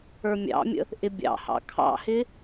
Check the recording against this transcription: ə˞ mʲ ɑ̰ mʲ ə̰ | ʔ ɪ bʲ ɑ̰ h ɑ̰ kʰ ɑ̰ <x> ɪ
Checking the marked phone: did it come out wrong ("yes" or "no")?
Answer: yes